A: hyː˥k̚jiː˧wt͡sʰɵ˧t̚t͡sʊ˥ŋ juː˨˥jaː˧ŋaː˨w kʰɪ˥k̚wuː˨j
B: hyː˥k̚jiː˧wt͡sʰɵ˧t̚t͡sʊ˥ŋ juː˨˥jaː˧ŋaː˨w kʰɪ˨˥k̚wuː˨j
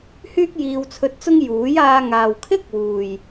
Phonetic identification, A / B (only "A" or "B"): A